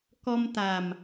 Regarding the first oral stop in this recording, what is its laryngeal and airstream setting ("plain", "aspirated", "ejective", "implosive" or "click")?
plain